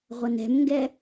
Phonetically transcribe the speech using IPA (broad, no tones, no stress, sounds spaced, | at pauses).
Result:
ʁʷ ə n ɛ̤ m ŋ ɡ ɛ